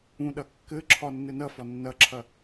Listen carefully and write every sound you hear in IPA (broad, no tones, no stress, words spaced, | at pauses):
ũɗɐ kːɘǁʰɒ nːɘnɐfɒ nːɐǁʰɐ